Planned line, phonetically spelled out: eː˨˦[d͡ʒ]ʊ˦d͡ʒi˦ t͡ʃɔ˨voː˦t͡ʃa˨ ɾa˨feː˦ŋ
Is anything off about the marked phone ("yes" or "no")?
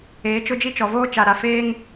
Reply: yes